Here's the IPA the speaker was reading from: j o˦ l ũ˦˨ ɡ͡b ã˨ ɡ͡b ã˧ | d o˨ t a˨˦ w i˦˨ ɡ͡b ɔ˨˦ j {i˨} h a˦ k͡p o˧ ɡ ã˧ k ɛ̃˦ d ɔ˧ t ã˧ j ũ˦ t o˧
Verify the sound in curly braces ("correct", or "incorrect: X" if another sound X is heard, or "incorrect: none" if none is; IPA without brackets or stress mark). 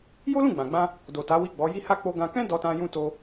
incorrect: i˦